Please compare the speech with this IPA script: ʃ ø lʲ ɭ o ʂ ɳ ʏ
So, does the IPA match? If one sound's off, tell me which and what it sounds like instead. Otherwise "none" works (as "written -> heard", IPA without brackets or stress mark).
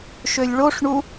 ʏ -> u